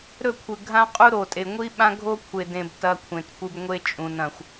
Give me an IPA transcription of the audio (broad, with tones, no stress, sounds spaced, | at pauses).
ɾ ɵ˦˨ kʷʰ ɨ˨ ɡʱ ã˦ qʼ u˦ ɾ o˨ tʼ e˨ ŋʷ i˦ ɓ ã˦ ɡʱ o˦ kʷʰ e˨ d ẽ˨ b t ɐ˦ kʷʰ ẽ˨ t kʷ ɨ˦ b ŋʷ e˦ t͡ʃʼ ũ˨ n ɐ̃˨ xʷ